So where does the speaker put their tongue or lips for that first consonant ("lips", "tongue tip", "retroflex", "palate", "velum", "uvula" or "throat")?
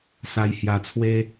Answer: tongue tip